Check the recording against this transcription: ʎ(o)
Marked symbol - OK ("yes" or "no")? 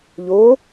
yes